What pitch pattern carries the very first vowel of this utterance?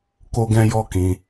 high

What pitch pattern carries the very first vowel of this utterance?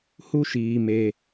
high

